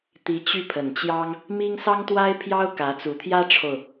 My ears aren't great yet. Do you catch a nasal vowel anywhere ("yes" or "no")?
no